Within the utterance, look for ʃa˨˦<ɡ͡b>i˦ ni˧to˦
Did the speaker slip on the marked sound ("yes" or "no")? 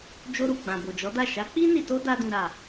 yes